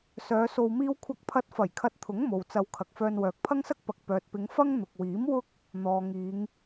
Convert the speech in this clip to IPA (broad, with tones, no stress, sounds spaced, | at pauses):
s œː˨˧ s o˧ w m iː˥ w kʷʰ ɐ˥ k̚ pʰ ɐ˥ t̚ f ɐ˨˩ j kʰ ɐ˧ t̚ t̪ʰ ʊ˨˥ ŋ m o˨ w t͡s ɐ˧ w kʰ ɐ˨ k̚ f œː˧ n w œː˨ k̚ pʰ ɐ˥ ŋ s ɐ˥ k̚ p ɐ˨ k̚ p œː˨ t̚ p ɪ˨˧ ŋ f ɐ˥ ŋ n̪ ʊ˨ k̚ w iː˨˥ m w ʊ˥ k̚ | n̪ ɔː˨ ŋ iː˨˧ ŋ